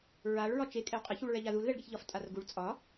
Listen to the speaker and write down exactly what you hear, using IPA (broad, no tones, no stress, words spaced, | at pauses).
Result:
ɹaɭ ɹɒt͡ʃe kʼɛwqʼɛç uɭɹɛʎaðul ðɛɭɡeçʎɒf tʼarɡuɭ t͡sʼɒ